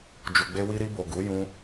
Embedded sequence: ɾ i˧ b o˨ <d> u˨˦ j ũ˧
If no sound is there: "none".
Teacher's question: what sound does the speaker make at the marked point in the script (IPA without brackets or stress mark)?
ɡ